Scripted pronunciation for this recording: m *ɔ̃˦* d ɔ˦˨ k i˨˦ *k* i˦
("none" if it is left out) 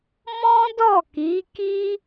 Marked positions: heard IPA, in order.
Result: ɔ̃˦, k

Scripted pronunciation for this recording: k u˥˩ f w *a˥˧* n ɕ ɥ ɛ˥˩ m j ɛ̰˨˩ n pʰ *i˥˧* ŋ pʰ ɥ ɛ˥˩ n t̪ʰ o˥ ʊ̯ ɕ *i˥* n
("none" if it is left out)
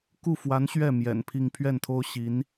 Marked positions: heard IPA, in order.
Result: a˧˥, i˥˧, i˧˥

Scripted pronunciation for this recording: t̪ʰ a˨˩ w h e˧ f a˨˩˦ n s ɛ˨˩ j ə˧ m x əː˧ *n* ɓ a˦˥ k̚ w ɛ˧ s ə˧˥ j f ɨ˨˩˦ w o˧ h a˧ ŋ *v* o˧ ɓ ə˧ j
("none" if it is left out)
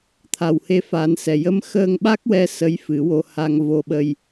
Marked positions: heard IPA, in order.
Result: ŋ, v

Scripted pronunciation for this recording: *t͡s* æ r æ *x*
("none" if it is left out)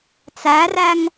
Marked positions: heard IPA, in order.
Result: t͡s, ŋ

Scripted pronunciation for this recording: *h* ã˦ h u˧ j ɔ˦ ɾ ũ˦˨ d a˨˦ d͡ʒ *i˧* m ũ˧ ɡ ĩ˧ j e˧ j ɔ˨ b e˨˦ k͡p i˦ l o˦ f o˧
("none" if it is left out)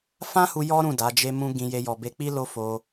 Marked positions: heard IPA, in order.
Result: f, e˧

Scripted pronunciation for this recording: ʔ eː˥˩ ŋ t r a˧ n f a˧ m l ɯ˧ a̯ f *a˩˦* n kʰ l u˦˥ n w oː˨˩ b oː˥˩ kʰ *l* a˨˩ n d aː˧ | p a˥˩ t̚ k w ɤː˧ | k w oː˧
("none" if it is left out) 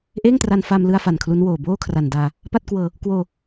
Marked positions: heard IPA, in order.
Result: a˨˩, r

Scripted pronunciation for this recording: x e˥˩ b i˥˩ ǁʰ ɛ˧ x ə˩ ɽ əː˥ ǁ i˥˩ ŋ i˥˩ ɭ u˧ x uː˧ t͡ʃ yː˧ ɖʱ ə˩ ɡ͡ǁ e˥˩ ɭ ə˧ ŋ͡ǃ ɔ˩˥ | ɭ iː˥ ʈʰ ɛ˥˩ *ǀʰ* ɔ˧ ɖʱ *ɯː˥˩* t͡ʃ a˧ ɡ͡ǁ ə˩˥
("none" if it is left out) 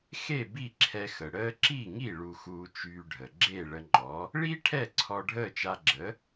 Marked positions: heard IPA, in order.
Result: ǀʰ, əː˥˩

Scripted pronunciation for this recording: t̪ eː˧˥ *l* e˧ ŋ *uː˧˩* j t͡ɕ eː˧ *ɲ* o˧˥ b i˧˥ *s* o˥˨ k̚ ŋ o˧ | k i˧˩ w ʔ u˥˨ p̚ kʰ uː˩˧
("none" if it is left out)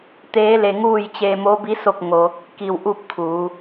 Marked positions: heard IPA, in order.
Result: l, uː˥˨, m, s

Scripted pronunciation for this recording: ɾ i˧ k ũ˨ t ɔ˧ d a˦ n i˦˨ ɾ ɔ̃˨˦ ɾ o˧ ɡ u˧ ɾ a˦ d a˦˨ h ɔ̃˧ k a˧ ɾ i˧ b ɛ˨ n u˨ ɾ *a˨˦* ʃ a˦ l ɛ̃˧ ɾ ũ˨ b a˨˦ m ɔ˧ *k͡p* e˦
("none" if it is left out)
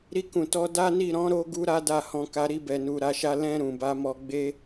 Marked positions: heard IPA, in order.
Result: a˨˦, ɡ͡b

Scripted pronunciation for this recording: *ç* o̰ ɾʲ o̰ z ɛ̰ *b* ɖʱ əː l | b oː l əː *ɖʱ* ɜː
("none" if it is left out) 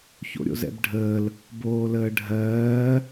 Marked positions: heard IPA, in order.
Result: ç, b, ɖʱ

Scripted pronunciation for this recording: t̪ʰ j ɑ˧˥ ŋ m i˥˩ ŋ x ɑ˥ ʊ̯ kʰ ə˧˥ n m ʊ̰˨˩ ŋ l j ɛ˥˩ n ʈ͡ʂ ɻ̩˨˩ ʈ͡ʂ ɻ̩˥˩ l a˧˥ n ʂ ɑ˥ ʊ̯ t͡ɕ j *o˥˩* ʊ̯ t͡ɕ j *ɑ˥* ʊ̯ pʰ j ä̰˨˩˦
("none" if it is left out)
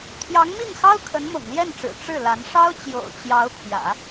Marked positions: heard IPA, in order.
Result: o̰˨˩, ɑ˧˥

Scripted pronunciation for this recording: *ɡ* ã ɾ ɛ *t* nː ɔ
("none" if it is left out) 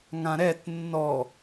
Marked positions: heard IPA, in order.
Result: ŋ, t

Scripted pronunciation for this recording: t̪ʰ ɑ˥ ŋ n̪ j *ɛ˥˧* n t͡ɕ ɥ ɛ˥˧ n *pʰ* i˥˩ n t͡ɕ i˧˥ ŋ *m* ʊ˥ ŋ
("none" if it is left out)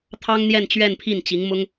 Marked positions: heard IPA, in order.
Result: ɛ˥˧, pʰ, m

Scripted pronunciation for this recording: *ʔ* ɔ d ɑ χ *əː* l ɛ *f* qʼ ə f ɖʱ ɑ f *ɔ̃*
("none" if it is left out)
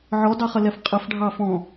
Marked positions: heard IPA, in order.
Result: ʕ, ə, f, ɔ̃

